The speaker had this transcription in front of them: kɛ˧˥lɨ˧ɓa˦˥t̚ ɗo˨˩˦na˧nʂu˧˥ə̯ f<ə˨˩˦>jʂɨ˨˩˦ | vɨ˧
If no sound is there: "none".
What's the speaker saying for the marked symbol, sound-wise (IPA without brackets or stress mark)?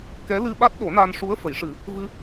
ə˨˩˦